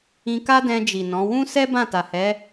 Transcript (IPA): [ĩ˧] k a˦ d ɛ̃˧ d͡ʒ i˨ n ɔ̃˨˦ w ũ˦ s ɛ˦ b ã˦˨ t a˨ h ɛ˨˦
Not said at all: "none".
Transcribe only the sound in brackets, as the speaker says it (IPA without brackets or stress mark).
ĩ˧